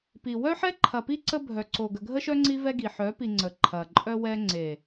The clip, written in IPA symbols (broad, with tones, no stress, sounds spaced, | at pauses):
p i˨ w œ˦ ħ ɛ˦ ǃʰ ɐ˨ p i˦ ǀ ə˦ bʱ œ˨ ǀ o˨ ɡ ə˨ ɡʱ ə˦ ʃ œ˦ ŋ͡ǀ i˦ v ɛ˦ ɡ i˨ ħ œ˨˦ p i˨ ŋ͡ǀ ə˨ ǃʰ ɐ˨ ǃʼ œ˦ w ɛ˦ ŋ͡ǀ e˨